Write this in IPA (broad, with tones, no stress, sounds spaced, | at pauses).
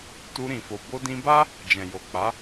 t u˧ ɾ ĩ˨ f o˨ b o˧ d ĩ˧ b a˦ | d͡ʒ ɛ̃˨ j o˨ k͡p a˨˦